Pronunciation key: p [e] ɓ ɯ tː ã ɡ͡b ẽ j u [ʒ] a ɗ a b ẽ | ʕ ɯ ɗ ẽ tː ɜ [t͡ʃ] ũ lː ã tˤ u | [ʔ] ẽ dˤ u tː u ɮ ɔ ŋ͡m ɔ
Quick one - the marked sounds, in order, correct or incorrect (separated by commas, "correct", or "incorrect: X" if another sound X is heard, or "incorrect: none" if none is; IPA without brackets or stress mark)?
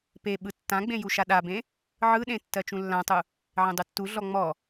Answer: correct, incorrect: ʃ, correct, incorrect: ʕ